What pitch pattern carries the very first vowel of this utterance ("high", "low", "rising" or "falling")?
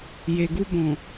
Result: low